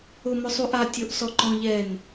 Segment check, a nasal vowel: present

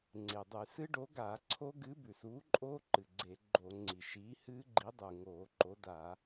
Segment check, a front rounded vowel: absent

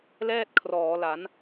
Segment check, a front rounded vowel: absent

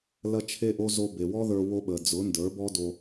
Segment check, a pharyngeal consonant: absent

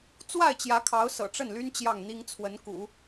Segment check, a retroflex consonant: present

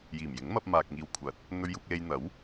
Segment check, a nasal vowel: absent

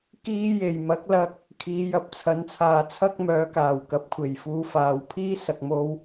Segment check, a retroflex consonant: absent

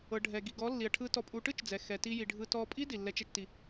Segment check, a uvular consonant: absent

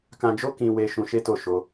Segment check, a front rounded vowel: absent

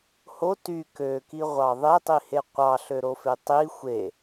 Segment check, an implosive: absent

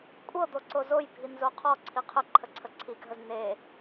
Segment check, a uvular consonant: present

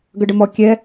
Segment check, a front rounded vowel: absent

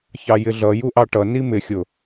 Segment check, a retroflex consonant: present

